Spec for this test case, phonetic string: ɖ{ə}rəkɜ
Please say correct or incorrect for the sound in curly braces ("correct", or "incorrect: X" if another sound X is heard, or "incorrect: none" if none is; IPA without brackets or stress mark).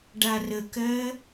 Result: incorrect: a